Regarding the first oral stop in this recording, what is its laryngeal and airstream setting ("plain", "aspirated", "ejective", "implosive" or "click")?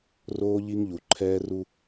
click